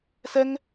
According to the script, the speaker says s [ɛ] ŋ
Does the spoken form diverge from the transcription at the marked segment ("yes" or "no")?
no